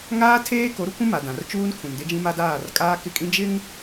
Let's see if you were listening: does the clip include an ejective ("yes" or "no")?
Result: yes